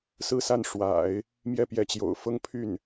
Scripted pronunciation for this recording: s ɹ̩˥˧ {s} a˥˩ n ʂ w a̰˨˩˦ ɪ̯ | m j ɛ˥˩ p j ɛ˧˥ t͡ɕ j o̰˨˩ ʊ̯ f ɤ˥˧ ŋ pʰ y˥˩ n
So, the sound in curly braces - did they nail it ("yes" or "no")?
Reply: yes